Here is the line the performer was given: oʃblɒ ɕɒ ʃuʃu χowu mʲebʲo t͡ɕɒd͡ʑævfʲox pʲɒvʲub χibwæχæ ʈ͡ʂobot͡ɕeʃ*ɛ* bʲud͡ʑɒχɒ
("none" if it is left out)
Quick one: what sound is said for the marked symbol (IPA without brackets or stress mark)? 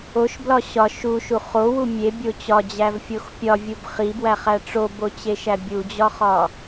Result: æ